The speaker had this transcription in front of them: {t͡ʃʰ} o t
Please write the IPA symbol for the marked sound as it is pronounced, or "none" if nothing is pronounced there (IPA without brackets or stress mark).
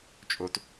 t͡ʃʼ